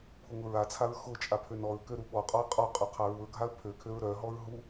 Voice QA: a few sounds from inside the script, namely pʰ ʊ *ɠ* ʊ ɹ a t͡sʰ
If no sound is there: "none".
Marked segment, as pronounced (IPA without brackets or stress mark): ŋ